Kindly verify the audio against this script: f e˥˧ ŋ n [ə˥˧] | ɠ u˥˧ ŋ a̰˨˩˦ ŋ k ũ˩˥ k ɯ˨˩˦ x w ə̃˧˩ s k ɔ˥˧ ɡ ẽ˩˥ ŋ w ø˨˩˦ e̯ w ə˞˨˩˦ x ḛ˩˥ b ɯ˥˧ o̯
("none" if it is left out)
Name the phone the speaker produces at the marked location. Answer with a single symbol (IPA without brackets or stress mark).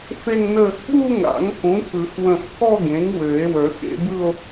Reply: ə˥˧